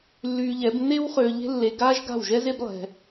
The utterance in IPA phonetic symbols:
lːyː˧ʎɛ˨˦bnːe˦wχø˧ ʎe̤˦lːe˧ɡaː˦ʒ ɡa̤˦˨wʒɛ˦ze˦blˠɛ̤˧

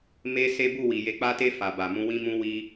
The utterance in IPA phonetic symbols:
me˦ se˦bu˦˨wi˨ je˨k͡pa˧te˧ fa˨ba˨ mũ˨˦ wĩ˦mũ˦ wi˧

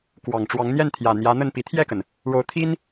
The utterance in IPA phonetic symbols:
kwɑ˨˩ŋʈ͡ʂwɑ˧˥ŋn̪jɛ˥˩nt̪ʰjä˨˩ n̪jä˧˥n̪ə˥˩n pi˧˥t̪ʰjɛ˥˩kə˩n | ɻo˧˥ʊ̯t̪ʰi˥n

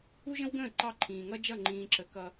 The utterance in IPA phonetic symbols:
u˦ʒə̃˦wɡə̃ː˦˨ ǃɑ˦ǃʰĩː˨ ŋʌ˦d͡ʒʌ˦˨ŋ͡ǃĩː˨ǁə˨ kʌ˦

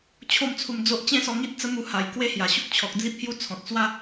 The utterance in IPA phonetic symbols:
t͡ɕʰo˥˧mt͡sʰu˧md͡zo˦ʔ t͡ɕẽ˥˧sɔ˧ŋi˦t̚ t͡sə˦mu˧ ha˨˩j kwe˦hja˨˩ ɕu˦k̚t͡ɕʰɔ˨k̚d͡zi˦p̚hju˦ t͡sʰɔ̃˨t̚t͡swa˦

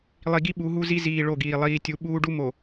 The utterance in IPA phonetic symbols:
lˠi˨ɡi˦ ɓu˨˦ɦu˦zi˦ ziː˨ ɭo˦˨ɡiː˨ lˠiː˨tʲu˨ɓuː˦ ɖu˦mo˨

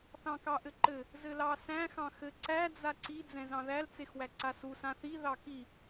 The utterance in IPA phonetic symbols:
θɑ̃kɑʔɘǃɘ | zɘlɑsæ̃ xɑ̃xɘ ǀæ d͡zaǀi d͡zɛ̃zɑ̃ðæl t͡sexwæǀasu sãθi ðɑki

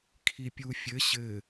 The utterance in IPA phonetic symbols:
kʰipʲufʲɘ ɕɘ

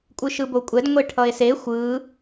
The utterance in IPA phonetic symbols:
kʷʼɯʃɯbokʷʼɛd ŋʷeʈʰʌe̯se xʷɯ

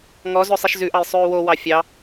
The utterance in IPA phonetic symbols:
ŋɔ zøsˤiʃzʉʔɑj sˤʉːwowɑ fʲɑ

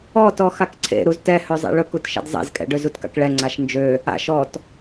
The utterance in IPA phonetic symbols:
ɔ tɔxakǀʰḛ ɾuztɛhøzˤḛ ɭɵkutʃɛ̰d zˤɛ̰zkʼɛ̰ɖøz utka̰kɭɛ ŋ͡ǀaʃnd͡ʒø | a̰ʃ ɔt

